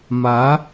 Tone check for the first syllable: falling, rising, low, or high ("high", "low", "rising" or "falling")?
rising